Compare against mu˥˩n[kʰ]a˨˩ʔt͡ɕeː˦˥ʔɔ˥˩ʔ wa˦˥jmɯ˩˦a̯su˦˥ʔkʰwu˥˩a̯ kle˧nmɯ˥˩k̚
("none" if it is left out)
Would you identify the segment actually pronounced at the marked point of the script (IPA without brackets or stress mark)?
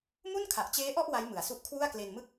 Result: kʰ